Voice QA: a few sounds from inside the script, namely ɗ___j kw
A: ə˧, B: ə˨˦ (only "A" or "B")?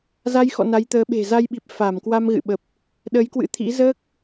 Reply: B